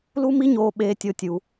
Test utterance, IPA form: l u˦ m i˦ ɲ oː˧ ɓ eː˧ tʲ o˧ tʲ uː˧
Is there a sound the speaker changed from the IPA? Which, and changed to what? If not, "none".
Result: uː˧ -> u˧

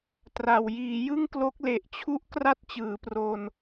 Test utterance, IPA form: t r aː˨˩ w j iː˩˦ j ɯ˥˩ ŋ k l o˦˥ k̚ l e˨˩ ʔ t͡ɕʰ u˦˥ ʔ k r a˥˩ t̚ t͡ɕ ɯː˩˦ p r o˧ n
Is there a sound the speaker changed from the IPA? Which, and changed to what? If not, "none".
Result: aː˨˩ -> a˨˩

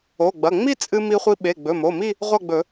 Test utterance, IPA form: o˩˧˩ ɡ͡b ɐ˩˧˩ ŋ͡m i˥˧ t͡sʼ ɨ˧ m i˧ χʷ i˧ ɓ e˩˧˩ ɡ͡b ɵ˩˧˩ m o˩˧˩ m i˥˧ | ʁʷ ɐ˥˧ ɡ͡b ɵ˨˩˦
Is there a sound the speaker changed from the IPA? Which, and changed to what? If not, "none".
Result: none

